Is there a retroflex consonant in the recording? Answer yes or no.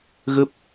no